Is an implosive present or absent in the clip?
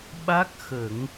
present